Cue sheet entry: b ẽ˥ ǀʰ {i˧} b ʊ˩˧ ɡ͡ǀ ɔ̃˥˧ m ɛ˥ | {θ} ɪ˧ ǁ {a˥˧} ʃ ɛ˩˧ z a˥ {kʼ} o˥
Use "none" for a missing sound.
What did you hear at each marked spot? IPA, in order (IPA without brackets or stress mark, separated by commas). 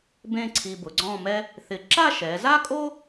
i˧, θ, a˥˧, kʼ